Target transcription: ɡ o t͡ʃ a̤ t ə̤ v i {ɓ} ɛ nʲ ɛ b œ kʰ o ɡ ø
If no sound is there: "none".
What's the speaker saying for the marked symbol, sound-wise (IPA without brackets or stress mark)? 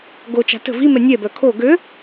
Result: m